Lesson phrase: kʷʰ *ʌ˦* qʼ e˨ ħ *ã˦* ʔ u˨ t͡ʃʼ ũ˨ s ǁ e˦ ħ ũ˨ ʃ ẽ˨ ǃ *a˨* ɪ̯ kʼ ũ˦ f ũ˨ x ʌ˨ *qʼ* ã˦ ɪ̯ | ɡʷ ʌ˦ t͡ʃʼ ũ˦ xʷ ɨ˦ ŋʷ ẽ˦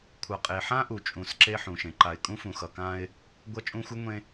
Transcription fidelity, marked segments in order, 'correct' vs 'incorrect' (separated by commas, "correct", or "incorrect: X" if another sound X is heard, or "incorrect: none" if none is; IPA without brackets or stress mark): incorrect: ʌ˨, correct, correct, incorrect: k